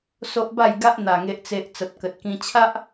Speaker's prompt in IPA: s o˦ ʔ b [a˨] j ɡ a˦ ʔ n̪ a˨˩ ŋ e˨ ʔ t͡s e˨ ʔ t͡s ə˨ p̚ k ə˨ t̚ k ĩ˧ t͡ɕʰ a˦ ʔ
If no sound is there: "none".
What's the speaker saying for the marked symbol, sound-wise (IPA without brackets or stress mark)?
a˥˧